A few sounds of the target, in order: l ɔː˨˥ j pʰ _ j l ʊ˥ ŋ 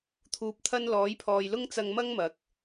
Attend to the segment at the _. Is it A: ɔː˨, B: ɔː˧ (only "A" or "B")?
A